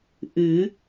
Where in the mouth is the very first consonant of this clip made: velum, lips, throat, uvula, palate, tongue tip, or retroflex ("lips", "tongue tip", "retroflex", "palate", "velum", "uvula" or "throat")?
throat